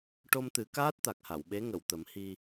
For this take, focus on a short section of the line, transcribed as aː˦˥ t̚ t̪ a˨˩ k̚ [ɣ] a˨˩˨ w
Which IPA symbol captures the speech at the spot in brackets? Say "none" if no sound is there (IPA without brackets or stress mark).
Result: h